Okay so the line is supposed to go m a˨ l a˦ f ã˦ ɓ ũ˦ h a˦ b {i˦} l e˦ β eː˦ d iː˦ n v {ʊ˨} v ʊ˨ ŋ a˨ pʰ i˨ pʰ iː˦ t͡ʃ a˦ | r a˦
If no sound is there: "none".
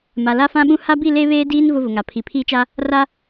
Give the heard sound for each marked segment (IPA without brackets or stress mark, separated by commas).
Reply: i˦˨, ʊ˦